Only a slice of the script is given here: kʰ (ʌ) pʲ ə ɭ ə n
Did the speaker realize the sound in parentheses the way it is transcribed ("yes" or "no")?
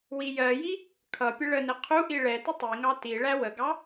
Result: yes